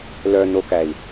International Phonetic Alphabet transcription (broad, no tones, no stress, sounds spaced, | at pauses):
l œ n o k æ i̯